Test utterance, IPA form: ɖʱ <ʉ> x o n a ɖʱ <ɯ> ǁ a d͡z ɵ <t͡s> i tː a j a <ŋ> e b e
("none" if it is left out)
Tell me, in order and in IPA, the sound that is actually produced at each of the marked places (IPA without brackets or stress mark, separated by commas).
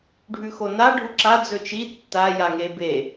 ʉ, u, t͡ʃ, ŋ